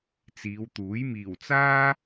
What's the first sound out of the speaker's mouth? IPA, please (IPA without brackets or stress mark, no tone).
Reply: t͡s